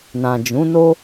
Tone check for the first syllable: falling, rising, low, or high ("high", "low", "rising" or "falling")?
low